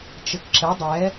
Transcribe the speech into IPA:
t͡ʃ ɘ k ǁ ɘ dˤ ɛ

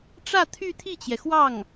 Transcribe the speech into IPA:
ʈ͡ʂ ä˥˧ t̪ʰ y˥˧ t̪ʰ i˥˩ t͡ɕ j ɛ˩ x w ɑ˥˩ ŋ

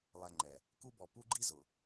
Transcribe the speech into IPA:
lˠ ɛ˨ ŋ͡ǃ ɛ˩ | k u˦ b ɔ˨ p u˦ ɡ͡ǃ i˦ z ʊ˩

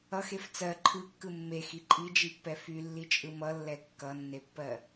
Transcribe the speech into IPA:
ʌ x e f t͡s ɜ ǃʰ ɯ kː ɯ mː e x i ǃʼ i d͡ʒ i pː ɛ f y lː i t͡ʃʼ ɯ m ʌ lː ɛ kː ʌ nː e pː ɜ

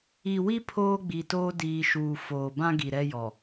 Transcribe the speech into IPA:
i˨ w i˦ pʰ oː˦ ɡ͡b i˨ t oː˦ d iː˨ ʃ uː˨ f oː˨ b ã˦ ɡ i˨ ɾ ɛ˦ j ɔ˨

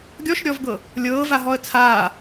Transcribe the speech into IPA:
ɡʲ ɔ ʃ ɾʲ ɔ v ɡ ɤ | lʲ ɤː v a ɦ ɔ ə̯ t͡sʰ aː

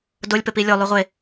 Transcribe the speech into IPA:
d o lʲ p ɘ p i lʲ o lˠ u ʁʷ e

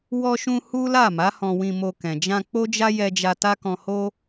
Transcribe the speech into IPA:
w ɔ˧ ʃ ũ˧ h u˦ l a˦˨ m a˨˦ h ɔ̃˧ w ĩ˧ m o˧ k ɛ̃˨ d͡ʒ ã˧ k͡p o˦ d͡ʒ a˦ j ɛ˧ d͡ʒ a˧ t a˦ k ɔ̃˧ h o˦

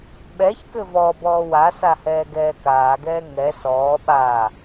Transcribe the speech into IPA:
ɓ ɛ ç k ɘ v ɔ b ɔː w a s a h ɛː ɡ ɛː k aː ɡ ɛː ŋ ɛ s ɔː ɓ a

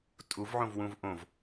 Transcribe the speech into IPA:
tʼ u v ʕ õ v w ũ v ʔ õ v

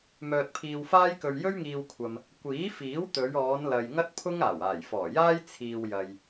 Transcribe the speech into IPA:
m œː˧ t̚ pʰ iː˧ w f aː˥ j k ɵ˧ ɥ j ɵ˥ ɥ ŋ iː˧ w kʷʰ ɐ˨ m | kʷ iː˨˥ f iː˨˥ w t̪ ɵ˨˧ ɥ ɔː˨˧ n l ɐ˨ j ŋ ɐ˥ t̚ pʰ ʊ˥ ŋ aː˨˩ w aː˨˩ j f ɔː˨˩ j aː˥ j t͡sʰ iː˧ w j ɐ˨ j

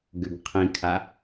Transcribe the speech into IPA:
ɡ ʏ ɡ qʰ ĩ kʰ a

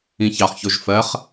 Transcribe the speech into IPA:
ĩ ç ɑ χ ç o ʒ f ɜ χ

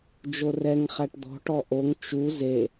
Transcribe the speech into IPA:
d͡ʒ o r ɛ ŋ χ æ ʈ d̪ ɔ̤ ʈ ɔ ʔ o ŋ t͡ʃ u z e

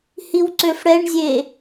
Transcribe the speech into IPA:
h i w ǀ ø f ɽ ɛ ɳ zʲ e

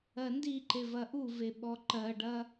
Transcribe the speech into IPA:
ɜ n d i ǃ e v ɐ ʔ u v e ɓ ɔ ǃ ɜ ɖ ɐ

